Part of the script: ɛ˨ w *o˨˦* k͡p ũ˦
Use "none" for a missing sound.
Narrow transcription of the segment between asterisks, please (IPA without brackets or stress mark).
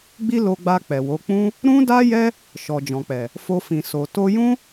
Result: o˨˦